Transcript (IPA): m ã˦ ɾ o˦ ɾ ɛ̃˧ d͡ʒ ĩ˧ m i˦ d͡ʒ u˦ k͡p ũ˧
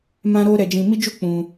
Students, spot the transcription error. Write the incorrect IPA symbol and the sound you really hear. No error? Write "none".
ɛ̃˧ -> ɛ˧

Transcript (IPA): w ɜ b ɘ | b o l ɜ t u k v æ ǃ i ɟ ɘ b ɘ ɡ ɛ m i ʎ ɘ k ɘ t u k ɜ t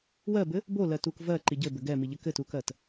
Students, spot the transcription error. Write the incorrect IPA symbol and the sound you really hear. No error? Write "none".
æ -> ɜ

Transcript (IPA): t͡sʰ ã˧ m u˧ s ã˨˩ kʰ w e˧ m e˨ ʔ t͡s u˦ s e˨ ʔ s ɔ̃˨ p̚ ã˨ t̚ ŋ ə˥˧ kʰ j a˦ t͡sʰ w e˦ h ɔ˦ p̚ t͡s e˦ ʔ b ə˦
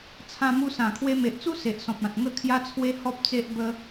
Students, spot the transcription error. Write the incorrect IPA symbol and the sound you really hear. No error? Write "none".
none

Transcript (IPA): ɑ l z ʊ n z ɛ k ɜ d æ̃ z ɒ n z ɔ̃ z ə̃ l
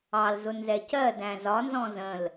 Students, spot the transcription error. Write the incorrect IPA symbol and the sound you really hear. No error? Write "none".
k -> c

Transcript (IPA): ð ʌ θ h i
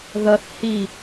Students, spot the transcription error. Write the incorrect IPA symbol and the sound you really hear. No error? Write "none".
none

